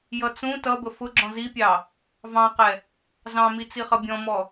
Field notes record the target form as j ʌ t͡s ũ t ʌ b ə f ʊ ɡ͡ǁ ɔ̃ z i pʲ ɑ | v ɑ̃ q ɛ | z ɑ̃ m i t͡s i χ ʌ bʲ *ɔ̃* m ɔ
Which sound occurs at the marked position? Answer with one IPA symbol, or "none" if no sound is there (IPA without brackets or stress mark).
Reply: ɔ̃